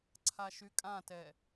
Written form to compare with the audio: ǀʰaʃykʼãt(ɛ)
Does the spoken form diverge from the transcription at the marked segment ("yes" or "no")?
no